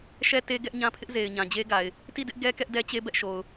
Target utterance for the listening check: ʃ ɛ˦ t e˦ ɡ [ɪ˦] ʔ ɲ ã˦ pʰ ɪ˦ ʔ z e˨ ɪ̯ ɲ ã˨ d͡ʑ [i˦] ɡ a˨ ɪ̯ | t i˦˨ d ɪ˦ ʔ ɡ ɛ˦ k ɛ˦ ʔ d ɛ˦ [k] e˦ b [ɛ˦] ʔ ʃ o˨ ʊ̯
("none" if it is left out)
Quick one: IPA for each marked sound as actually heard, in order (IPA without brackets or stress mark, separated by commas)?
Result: ɛ˦, e˦, t͡ɕ, ɛ˦